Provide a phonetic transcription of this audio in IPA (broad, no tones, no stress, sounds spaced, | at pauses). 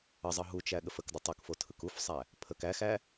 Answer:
ə zˤ ɯ ɦ u t͡ʃ æ ɠ ə f ə k d ə tˤ u k f o tʰ ɯ k u f sˤ æ | pʰ ə k æ x æ